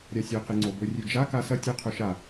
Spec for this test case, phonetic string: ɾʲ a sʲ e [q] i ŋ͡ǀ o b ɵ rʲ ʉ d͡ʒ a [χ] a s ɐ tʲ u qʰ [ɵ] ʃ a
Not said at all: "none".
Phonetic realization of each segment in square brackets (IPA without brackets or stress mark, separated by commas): q, k, ɵ